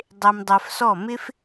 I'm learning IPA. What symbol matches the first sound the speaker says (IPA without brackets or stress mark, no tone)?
dˤ